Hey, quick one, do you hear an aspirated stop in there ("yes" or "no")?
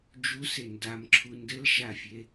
yes